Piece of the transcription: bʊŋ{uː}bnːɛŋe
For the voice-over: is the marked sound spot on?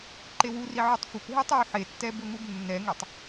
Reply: no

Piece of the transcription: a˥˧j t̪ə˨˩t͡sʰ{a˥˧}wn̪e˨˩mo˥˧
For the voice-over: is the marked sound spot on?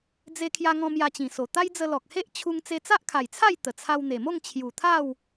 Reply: no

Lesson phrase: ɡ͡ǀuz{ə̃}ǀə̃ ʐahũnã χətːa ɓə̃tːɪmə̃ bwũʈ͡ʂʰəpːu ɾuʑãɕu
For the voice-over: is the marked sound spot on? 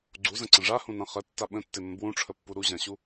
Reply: yes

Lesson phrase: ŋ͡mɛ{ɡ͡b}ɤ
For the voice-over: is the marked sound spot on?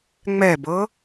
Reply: no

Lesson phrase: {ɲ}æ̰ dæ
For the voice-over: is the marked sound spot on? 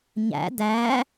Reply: yes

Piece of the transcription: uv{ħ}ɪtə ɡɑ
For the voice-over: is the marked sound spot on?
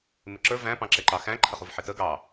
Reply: yes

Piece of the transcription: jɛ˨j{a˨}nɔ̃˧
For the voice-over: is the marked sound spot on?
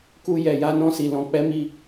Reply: no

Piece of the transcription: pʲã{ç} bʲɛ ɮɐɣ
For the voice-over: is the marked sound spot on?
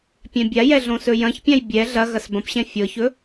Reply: no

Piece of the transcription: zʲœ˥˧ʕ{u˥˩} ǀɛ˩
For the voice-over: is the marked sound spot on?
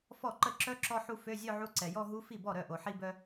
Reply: no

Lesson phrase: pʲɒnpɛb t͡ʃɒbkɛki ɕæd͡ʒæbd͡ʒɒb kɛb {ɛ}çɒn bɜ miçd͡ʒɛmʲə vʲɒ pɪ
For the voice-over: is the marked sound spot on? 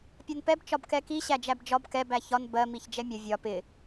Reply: no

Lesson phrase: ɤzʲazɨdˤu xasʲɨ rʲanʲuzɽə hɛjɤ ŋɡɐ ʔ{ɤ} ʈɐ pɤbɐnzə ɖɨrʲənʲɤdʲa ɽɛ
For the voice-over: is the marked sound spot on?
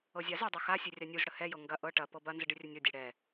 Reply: yes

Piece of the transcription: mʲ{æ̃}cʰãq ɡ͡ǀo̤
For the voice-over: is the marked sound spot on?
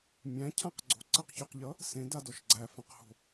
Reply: yes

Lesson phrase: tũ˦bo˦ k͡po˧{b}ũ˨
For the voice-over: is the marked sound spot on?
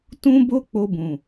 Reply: yes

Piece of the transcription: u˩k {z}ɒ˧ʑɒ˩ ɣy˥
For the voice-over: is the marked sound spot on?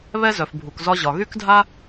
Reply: yes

